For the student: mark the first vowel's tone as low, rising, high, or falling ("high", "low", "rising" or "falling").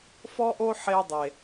high